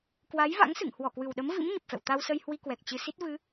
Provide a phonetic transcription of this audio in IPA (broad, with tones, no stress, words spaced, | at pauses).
kwa˨˦jva̰˧˥ŋsɨ̰˧˨ŋ hwɔ˧˩kwɨ˨˩wɗə˨˦mvḭ˧˥m ɲə˨˩p̚fɛ̰˧˨w t̪a˧wsə˧jhwi˧ kwɛ˨˩k̚t͡ɕɨ˧ si˦˥t̚vɨ˨˦